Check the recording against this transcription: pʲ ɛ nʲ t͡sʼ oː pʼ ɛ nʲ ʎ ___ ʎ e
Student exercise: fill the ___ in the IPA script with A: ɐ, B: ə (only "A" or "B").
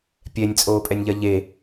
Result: A